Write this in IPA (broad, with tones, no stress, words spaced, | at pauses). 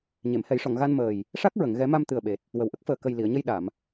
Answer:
ɲe˨˩˨mhɛ˨˩˦jʂɔ˨˩˨ŋ ɣa˧nməː˨˩j | ʂa˦˥k̚ɹə˨˩˨ŋ ɣɛ˨˩˦ma˧m t̪ɨ˨˩ə̯ɓe˨˩t̚ | wə˨˩wʔə˦˥k̚ fəː˨˩ kə˨˩j li˨˩˨ə̯ɲə˧j ɗa˨˩˨m